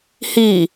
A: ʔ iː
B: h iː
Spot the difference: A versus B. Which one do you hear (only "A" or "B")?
B